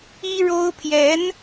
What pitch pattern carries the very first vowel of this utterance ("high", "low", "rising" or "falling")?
high